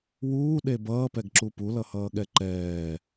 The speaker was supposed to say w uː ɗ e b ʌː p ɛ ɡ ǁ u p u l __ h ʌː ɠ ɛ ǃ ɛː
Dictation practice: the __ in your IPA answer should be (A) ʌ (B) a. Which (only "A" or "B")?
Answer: A